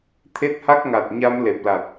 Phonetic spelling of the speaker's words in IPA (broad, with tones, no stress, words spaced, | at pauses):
t̪ʰe˦˥t̚ha˦˥k̚ŋa˨˩t̚ɲa˧m le˨˩p̚la˨˩t̚